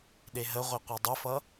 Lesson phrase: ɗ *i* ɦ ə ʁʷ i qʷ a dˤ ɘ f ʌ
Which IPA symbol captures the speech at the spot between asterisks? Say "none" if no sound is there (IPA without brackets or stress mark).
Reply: e